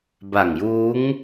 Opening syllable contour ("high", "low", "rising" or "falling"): low